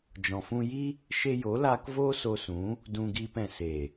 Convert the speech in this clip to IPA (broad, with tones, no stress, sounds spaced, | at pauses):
d͡ʒ ɔ̃˨ f ũ˧ j i˦ | ʃ e˧ j o˨˦ l aː˧ k v oː˦ s o˧ s ũ˨˦ | d ũ˧ ɡ iː˧ p ɛ̃˨ s e˨